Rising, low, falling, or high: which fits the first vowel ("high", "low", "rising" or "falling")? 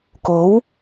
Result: rising